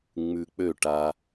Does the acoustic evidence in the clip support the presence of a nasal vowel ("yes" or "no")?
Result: no